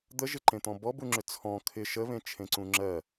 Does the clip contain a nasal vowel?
yes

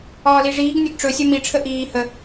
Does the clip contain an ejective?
no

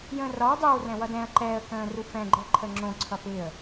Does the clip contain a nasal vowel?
yes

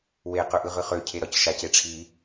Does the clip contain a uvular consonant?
yes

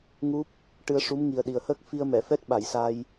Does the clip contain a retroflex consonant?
yes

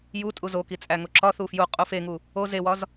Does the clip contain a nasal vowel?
no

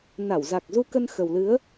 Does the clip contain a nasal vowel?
no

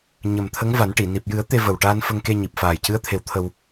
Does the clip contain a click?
no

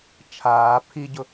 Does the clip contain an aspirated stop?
yes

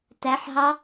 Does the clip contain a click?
no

